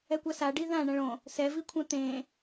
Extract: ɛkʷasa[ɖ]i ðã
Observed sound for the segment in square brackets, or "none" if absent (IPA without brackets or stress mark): ɖ